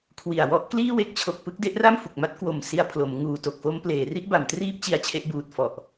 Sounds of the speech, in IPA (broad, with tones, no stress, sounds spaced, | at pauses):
kʰ w i˨˩ a̯ w ɔ˦˥ ʔ k l iː˥˩ w e˦˥ k̚ t͡ɕʰ o˨˩ k̚ p ɯ˥˩ k̚ d e˥˩ ʔ r a˥˩ m f u˨˩ k̚ m a˥˩ t̚ k w o˨˩ m s i˧ a̯ pʰ l o˩˦ m ŋ uː˨˩ t o˨˩ k̚ f o˦˥ m p l eː˩˦ r i˦˥ ʔ b a˩˦ m t r iː˦˥ p̚ t͡ɕ i˧ a̯ t͡ɕʰ e˦˥ ʔ b uː˨˩ t̚ f ɔ˨˩ ʔ